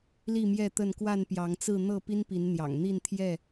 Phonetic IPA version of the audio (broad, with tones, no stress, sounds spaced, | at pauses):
l i˥˨ m j ɛ˥˨ t̪ ə˥˨ n k w a˥˨ n p j ɑ˨˦ ŋ t͡s ɹ̩˥˨ n̪ ɤ˥˨ p i˦ n p i˨˦ n n̪ j ɑ̰˨˩ ŋ n̪ i˥˨ n t̪ʰ j ɛ˥˨